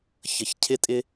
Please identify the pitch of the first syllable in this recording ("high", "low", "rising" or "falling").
low